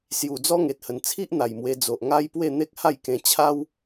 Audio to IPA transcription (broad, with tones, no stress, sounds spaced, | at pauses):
s j u˨˩ d͡z ɔ˦ ŋ e˨ t̚ h ə˨˩ n t͡sʰ i˦ ʔ n̪ a˨˩ j m w e˧ d͡z o˨ ʔ ŋ a˦ j p w e˥˧ n̪ e˦ k̚ h a˥˧ j k ẽ˧ t͡ɕʰ a˦ w